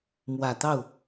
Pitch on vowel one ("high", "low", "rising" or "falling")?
low